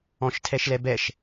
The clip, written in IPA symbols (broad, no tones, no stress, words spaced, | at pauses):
ɔ̃ʃtʰɛʃlɛbɛʃ